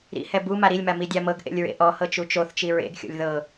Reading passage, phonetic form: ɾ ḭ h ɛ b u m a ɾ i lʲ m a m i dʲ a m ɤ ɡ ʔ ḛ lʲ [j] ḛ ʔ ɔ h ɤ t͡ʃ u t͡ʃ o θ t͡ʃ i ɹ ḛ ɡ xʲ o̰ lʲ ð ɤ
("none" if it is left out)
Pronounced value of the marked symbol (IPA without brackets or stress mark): ɹ